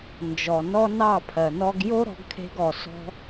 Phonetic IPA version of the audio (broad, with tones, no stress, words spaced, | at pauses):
nd͡ʒɔ˨nɔ˦nɑ˦˨ pʰɜ˨nɔ˦ɡ jo˦ ɾɔ̤˧ɡkʰe̤˧ɡɔ˨ sɔ̤˧